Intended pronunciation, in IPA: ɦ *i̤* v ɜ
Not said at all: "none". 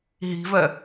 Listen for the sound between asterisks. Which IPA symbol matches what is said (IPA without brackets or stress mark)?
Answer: i̤